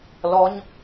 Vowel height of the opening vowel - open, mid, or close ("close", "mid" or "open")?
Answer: mid